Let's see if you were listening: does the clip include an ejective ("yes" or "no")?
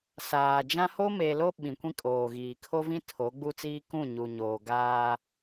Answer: yes